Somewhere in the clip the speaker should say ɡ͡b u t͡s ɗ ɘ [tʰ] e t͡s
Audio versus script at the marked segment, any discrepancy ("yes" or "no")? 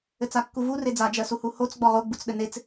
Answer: yes